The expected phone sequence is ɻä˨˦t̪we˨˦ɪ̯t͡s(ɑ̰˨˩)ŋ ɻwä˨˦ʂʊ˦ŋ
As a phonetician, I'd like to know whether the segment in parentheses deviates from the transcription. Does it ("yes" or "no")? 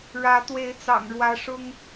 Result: no